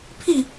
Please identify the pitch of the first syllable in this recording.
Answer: falling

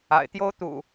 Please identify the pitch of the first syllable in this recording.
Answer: low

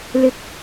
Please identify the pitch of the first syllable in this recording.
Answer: high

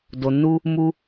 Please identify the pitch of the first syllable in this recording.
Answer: low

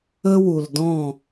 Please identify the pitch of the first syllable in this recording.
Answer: high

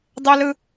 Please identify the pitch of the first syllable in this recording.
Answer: high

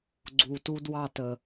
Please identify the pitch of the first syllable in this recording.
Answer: low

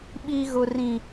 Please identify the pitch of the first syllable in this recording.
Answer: high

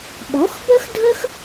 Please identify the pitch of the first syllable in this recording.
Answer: rising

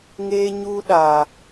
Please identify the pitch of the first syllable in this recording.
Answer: high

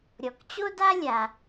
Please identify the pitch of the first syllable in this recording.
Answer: low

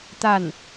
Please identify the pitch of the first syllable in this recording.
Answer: falling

